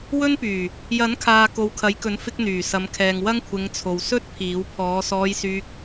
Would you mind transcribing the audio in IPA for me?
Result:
w ɵ˥ n p yː˨˩ | j ɐ˨˥ n kʰ aː˨ k o˨˧ w kʰ ɐ˨˧ j k ɵ˨˥ n f ɪ˧ k̚ n̪ yː˨˩ s ɐ˨˧ m kʰ ɛː˨ ŋ w ɐ˥ ŋ kʷʰ ɪ˨˧ ŋ t͡sʰ o˨ w s ɵ˥ t̚ pʰ iː˨˥ w pʰ ɔː˨˧ s ɔː˧ j s yː˧ k̚

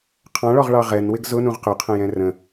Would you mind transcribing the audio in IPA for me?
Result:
qʰ ɑ̃ ɭ ɔ ʁ ɭ ɑ ʁ ɛ n w ɪ ɡ z ʊ n ũ ʁ q ʊ qʰ ə̃ j ɛ̃ r ə̃

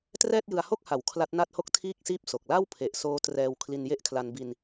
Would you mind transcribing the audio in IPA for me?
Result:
t r ɛː˥˩ t̚ j ɯ˧ a̯ h o˥˩ k̚ h a˩˦ w kʰ l a˦˥ t̚ n a˥˩ t̚ h o˥˩ k̚ tʰ iː˥˩ k̚ s iː˦˥ p̚ s o˨˩ k̚ l a˥˩ w pʰ e˨˩ ʔ s oː˦˥ t r ɛː˧ w kʰ l i˧ n j e˥˩ ʔ kʰ l a˧ n b i˧ n

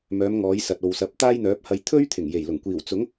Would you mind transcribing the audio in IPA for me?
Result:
m œː˨˧ m ŋ ɔː˨˧ j s ɐ˨ t̚ o˨ w s ɐ˨˥ p̚ t̪ aː˥ j n̪ œː˨˥ p̚ h ɐ˧ j t̪ʰ ɵ˥ ɥ t̪ʰ ɪ˨˩ ŋ j e˨˩ j l ʊ˨˩ ŋ kʷ iː˨˩ w t͡s ʊ˨˥ ŋ

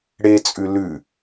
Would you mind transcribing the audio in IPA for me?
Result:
ɽ e t͡sʼ ʉ l ʉ

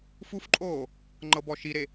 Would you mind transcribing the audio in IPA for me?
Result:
f u f ǃʼ oː | ŋ͡ǃ ɤ b ɔ ʃ i ɾ e

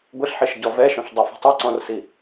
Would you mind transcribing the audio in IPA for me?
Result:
ɡʷ e ɬ ħ i ʃ ɟ ɔ v ɛ ʃ ɔ̃ ɬ dˤ i f i̤ tˤ i ǀ ɔ̃ r s i

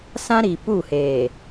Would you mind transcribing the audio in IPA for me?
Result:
s ã˦ ɾ i˨ p u˦˨ h eː˨

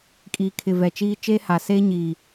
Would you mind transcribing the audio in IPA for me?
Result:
kʼ iː˨ kʰ ɪ˨ v ɛ˨ t͡ʃ iː˦ t͡ʃ eː˦ h a˨ s eː˦ ɲ iː˨

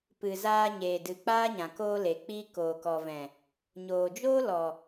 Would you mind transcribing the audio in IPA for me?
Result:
p ɨ˨ z aː˧ ɲ eː˨ d ɨ˨ k͡p aː˦ ɲ ã˨ k oː˧ l e˨ k͡p iː˦ k oː˨ k ɔ˨ v ɛ̃˨ | ɲ oː˨ d͡ʒ oː˦ l ɔ˨

